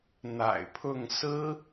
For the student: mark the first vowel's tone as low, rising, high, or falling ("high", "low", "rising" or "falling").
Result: low